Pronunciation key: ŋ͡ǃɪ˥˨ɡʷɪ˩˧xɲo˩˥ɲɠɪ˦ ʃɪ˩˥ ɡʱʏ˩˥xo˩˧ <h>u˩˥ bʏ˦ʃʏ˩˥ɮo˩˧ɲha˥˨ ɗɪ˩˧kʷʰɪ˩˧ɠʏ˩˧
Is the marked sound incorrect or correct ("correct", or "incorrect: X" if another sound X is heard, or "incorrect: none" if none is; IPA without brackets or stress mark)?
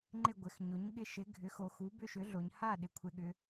incorrect: x